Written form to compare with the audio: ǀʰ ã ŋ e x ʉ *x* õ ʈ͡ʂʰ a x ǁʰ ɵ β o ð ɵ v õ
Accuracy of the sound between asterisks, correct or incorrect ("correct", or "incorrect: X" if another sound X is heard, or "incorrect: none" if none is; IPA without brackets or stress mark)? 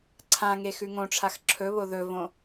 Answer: incorrect: ŋ